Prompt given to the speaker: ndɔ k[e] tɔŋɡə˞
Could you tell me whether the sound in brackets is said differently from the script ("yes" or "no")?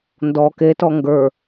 no